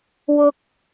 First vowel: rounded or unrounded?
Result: rounded